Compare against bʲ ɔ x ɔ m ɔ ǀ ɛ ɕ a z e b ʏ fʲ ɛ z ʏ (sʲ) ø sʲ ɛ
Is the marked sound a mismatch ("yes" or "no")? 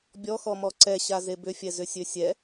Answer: no